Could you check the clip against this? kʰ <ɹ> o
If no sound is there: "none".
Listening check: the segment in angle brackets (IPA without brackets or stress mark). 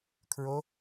ɹ